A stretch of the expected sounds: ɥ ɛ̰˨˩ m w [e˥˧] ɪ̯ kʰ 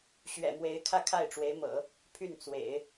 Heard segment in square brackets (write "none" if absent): e˧˥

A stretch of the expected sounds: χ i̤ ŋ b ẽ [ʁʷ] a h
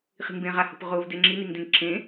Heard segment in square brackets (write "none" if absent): ʁ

